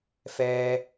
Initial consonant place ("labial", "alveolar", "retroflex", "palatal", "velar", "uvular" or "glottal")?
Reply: labial